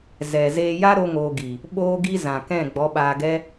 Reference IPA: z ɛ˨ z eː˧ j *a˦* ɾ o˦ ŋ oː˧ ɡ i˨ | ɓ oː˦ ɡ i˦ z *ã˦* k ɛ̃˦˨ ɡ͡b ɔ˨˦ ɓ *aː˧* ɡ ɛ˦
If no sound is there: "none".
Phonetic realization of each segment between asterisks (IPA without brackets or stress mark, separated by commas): a˦, ã˨, aː˧